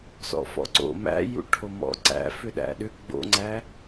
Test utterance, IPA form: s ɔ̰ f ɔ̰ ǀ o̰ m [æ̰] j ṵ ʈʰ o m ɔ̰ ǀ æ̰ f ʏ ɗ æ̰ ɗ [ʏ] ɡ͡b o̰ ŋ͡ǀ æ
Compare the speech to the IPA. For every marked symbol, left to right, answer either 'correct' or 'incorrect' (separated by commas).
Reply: correct, correct